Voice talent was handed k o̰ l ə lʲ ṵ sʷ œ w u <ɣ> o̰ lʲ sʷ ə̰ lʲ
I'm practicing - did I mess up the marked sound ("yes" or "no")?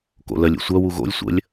no